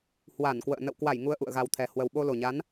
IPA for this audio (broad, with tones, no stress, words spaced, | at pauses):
hwa˧˩nkwə̰ː˧˨ nə̰˧˨wkwa˧˩j ŋu˧ə̯ʔṵ˧˨ə̯ɣa˨˩wt̪ʰɛ˨˩ hwə˨˩wɓo˧lo˨˩ɲa˨˦n